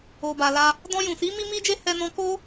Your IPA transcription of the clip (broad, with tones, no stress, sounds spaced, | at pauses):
o˨ b a˨ l a˧ | d ɔ̃˧ j ũ˨ s i˨˦ m i˧ m i˧ d͡ʒ e˧ h ɛ˧ n ɔ̃˧ k o˦